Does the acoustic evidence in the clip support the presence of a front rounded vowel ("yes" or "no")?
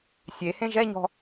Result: no